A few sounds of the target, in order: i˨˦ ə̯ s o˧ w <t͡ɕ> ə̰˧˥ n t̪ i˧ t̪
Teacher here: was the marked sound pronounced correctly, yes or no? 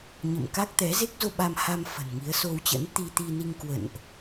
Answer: yes